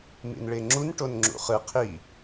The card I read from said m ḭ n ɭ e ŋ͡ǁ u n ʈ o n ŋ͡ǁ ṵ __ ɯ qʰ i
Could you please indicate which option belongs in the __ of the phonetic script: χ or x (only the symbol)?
χ